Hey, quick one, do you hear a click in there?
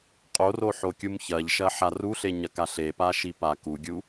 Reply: no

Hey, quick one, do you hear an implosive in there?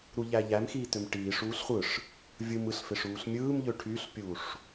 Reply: no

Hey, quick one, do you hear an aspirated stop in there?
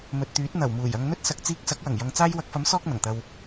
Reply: no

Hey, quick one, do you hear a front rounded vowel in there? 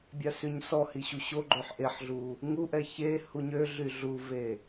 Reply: yes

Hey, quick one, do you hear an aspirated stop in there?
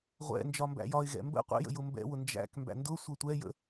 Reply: no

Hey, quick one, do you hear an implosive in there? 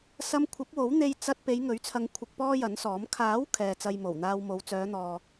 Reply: no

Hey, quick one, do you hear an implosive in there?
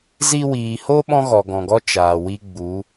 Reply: yes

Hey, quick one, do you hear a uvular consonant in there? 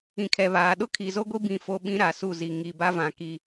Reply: no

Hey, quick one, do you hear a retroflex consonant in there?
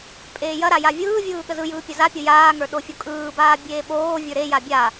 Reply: no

